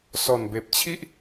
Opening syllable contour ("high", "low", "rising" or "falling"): low